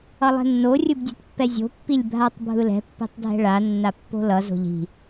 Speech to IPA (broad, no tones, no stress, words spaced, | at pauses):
ʌlˠɛ̤nːo rʲɯbdʲɛ̤tpːɛzʲo̤ pːilʲbʱatˤ bʱɯlɛ̤ pːi̤tˤdʱɛ̤ɭa nːapːo̤lʌ zo̤ʎi̤